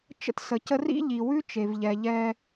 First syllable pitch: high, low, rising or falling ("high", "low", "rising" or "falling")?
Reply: high